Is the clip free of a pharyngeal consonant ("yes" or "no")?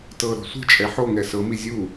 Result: no